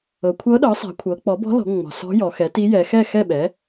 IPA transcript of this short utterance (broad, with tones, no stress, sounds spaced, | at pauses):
ɤ˩˧ kʷʰ ɤ˧˥ ɗ ɤ˩˥ sˤ ɛ̤˩˧ kʷʰ ɤ˩˧ k͡p ɔ˩˥ b ɔ̤˧˥ l ɔ̤˩˧ ŋ͡m ɔ̤˩ s ɔ̤˧˥ j ɔ˩˧ x ɛ˩˥ t i˧˥ j ɛ˩˧ x ɛ˥˨ x ɛ˥˨ ɓ ɛ˩˥